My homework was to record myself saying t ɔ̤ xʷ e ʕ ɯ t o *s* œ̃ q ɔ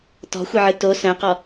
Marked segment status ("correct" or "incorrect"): correct